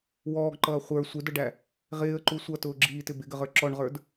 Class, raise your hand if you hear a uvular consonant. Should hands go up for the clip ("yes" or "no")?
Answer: yes